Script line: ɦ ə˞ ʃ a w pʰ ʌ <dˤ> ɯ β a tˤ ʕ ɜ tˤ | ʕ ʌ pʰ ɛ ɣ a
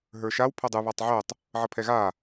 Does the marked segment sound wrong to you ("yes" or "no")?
no